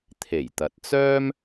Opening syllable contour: low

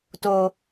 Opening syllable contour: low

